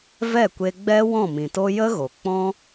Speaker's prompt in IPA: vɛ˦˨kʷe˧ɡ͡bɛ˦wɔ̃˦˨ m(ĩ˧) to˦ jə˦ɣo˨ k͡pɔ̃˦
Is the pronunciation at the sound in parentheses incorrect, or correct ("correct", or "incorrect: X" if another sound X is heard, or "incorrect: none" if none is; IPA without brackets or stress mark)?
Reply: incorrect: ĩ˨